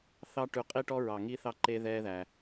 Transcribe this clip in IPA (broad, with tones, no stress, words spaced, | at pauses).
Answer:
θɑ˦ʈʉ˧qʼi˦ʈɔ˦ ɹɑ˨ ŋi˦θɑ˦ ǃe˦ðɛː˦ðæ˧